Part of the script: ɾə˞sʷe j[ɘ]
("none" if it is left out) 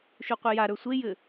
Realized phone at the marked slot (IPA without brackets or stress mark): ɘ